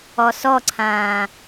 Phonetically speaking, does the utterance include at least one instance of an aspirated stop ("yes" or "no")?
yes